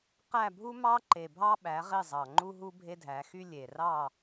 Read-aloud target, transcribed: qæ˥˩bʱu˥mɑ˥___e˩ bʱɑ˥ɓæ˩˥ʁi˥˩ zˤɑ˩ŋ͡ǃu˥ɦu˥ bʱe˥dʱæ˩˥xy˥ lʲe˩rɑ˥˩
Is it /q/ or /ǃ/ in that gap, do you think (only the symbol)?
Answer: ǃ